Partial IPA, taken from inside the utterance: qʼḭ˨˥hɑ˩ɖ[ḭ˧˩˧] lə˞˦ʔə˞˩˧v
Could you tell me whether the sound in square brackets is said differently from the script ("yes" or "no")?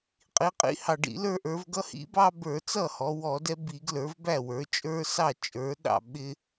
no